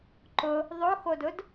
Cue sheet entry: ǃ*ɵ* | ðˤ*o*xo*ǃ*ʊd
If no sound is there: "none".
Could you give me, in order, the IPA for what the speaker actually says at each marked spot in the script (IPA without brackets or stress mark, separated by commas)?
ʊ, o, d